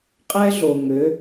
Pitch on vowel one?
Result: high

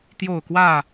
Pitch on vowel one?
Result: falling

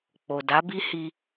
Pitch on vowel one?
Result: low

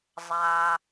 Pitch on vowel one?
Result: low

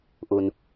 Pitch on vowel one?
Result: low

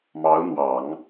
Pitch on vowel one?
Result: rising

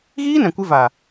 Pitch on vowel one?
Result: high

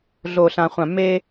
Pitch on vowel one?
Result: low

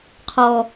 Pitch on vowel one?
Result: low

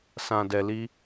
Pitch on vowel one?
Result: low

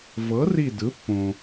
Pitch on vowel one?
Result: rising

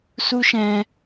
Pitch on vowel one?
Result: high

